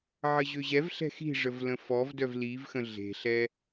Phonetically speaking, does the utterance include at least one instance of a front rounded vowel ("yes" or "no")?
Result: yes